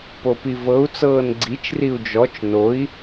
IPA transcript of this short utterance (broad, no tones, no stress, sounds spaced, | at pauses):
p o p i v ɤ u̯ t͡s ɤː n ɡ͡ǀ i t͡ʃ r i u̯ d͡ʒ ɔ t͡ʃ n o i̯